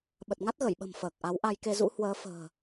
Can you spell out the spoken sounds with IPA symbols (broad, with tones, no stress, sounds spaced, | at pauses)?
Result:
ɓ ə˨˩ t̚ ŋ a˦˥ t̚ ɣ ə˧˩ j ɓ ə̤˨˩ m f əː˨˩ k̚ ʔ a˨˦ w ʔ a˧ j k e˧ z ṵ˧˥ h w əː˨˦ f ə̤ː˨˩